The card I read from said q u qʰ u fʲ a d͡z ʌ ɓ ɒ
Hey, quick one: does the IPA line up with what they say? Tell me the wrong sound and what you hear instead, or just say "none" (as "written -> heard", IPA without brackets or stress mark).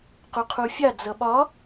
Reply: none